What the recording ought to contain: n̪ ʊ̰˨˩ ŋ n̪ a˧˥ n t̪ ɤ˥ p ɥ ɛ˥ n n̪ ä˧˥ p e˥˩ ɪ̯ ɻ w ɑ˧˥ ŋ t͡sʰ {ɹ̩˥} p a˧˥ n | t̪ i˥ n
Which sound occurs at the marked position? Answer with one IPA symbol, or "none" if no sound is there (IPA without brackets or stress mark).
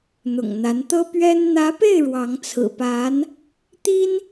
ɹ̩˨˩